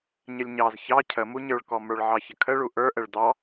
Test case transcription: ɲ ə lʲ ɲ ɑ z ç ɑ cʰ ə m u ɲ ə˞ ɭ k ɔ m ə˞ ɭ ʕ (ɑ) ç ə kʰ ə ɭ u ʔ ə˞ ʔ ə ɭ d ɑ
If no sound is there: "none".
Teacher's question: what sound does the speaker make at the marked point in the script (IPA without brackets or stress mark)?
ɑ